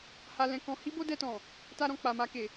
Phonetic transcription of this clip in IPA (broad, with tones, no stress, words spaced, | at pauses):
ha˧lɛ̃˧kɔ̃˧ hi˦bo˦dɛ˧tɔ̃˨ | ta˧ɾɔ̃˨ k͡pa˨ma˧ke˨